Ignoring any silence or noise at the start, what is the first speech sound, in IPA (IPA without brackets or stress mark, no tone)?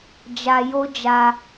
d͡ʒ